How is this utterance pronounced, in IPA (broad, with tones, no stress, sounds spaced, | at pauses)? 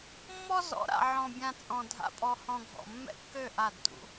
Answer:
mː ɔ˦ z ɔ̰˨˦ ɾ a̰˨ ʕ ɔ̃˨ bʲ ã˨ t͡sʼ ɔ̃˨ dʱ a̰˨ pʼ ɔ˨ h ɔ̃˨ ɡʱ ɔ̰˨ mː ɛ̰˦ kː ø˦˨ ʔ a˦˨ d t ṵ˦